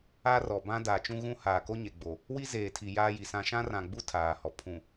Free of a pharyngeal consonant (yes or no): yes